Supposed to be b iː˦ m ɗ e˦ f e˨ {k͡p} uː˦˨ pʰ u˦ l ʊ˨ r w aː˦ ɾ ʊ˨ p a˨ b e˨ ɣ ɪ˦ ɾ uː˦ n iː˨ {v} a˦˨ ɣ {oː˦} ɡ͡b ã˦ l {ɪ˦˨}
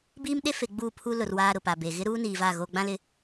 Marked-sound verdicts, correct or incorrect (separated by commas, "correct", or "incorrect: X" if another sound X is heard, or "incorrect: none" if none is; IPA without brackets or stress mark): incorrect: ɡ͡b, correct, incorrect: oː˨, correct